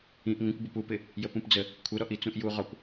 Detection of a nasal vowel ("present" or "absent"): present